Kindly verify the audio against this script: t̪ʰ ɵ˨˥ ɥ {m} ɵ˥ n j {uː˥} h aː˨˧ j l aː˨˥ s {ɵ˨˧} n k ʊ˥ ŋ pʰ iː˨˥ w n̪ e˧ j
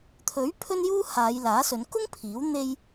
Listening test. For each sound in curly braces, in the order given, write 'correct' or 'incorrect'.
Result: incorrect: pʰ, correct, correct

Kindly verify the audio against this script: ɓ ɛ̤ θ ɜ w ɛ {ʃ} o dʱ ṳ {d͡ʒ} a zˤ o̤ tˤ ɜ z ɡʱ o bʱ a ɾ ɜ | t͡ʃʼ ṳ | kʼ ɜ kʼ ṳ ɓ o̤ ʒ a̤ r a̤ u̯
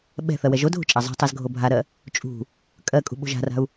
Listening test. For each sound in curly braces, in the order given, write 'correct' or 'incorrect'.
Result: incorrect: ʒ, incorrect: t͡ʃʼ

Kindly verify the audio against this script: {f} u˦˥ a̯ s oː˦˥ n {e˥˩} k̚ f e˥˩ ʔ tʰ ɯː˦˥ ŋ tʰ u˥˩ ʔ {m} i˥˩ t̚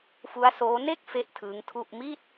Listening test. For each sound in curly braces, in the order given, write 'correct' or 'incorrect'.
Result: correct, correct, correct

